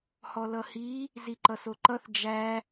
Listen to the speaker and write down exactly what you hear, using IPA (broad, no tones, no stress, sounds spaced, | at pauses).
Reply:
h ɔ l ʌ h i | z i ǃ ʌ s o ǃ ʌ θ d͡ʒ æ